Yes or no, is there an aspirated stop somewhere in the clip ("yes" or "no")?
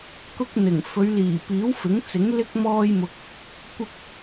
no